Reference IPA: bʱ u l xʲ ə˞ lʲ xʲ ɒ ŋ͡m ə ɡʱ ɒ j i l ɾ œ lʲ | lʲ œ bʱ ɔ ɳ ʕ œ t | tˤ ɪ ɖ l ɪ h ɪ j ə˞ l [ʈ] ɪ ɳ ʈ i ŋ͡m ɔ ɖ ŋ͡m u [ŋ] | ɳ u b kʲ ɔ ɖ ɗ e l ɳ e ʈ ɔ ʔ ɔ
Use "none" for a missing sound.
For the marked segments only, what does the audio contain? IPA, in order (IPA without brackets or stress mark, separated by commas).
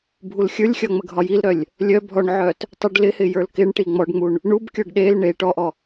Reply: k, ɳ